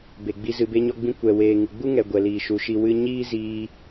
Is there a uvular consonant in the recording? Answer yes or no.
no